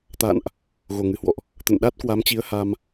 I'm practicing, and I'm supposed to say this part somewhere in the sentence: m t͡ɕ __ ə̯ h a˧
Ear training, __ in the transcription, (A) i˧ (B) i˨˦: B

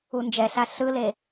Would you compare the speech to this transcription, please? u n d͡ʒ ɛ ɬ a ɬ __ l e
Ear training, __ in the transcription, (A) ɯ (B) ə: A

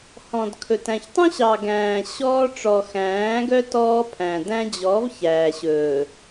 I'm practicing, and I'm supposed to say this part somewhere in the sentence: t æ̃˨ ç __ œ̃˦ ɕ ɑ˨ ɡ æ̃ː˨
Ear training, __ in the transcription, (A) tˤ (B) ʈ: A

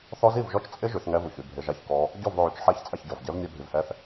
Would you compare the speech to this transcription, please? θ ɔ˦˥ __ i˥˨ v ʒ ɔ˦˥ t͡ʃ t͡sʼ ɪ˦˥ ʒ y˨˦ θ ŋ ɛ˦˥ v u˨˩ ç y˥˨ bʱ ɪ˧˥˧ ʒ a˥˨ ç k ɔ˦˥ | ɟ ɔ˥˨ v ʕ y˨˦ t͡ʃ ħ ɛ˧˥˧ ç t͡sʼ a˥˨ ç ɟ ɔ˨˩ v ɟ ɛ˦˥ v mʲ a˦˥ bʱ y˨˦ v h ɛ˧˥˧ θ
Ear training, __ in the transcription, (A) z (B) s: A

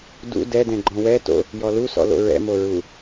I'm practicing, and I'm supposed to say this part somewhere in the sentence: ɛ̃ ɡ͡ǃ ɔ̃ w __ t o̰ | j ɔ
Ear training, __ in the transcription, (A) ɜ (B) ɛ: B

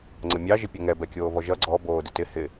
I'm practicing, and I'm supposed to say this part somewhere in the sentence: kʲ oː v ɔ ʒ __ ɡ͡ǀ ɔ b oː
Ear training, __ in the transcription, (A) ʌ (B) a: A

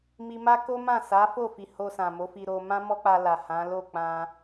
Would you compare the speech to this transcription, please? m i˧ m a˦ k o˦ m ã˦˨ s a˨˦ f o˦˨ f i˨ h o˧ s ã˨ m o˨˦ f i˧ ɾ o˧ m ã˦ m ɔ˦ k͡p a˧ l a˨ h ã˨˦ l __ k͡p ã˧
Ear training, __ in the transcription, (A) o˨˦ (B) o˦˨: B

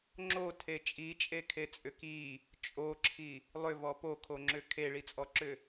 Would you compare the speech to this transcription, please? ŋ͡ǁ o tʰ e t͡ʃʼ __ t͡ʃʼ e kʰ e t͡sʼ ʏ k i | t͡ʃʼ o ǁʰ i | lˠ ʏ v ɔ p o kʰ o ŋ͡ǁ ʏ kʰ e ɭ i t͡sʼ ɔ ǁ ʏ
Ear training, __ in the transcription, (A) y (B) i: B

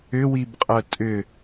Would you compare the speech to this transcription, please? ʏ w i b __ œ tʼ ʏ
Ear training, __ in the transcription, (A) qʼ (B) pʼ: A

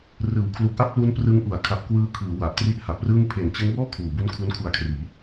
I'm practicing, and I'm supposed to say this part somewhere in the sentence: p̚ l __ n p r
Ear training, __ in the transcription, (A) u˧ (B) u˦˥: B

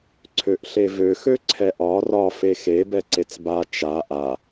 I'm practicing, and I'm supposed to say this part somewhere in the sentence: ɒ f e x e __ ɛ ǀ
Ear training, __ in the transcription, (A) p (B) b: B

